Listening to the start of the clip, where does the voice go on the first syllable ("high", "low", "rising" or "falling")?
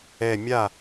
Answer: low